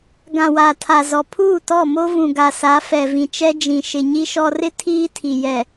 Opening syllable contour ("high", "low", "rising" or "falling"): low